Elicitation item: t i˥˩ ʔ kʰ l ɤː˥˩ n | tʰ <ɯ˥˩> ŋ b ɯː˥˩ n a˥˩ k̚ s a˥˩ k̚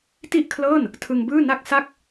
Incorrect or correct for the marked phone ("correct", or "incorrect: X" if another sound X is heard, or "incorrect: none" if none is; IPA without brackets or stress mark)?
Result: incorrect: ɯ˧